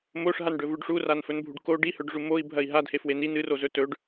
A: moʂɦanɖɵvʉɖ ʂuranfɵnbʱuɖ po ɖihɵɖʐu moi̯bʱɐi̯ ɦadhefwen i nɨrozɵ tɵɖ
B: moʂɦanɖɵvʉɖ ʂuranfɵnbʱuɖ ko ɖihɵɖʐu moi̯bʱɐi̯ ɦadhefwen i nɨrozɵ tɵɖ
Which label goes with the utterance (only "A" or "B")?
B